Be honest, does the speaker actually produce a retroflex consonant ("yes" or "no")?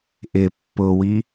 no